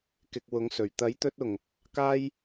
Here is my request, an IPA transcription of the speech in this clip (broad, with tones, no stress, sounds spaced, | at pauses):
k ɪ˧ k̚ w ʊ˧ ŋ s ɵ˨˩ ɥ t̪ ɐ˨˥ j t̪ ɵ˧ t̚ ʊ˨˩ ŋ | k aː˥ j